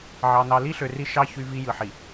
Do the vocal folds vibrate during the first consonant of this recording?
yes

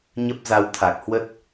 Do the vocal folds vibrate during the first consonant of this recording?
yes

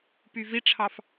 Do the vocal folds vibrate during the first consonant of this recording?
no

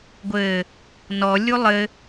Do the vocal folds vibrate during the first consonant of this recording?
yes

